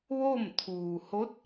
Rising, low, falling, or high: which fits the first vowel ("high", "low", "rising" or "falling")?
falling